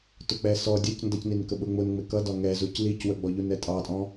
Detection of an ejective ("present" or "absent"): present